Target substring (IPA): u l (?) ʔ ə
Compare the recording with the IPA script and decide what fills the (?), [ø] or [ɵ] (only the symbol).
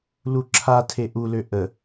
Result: ø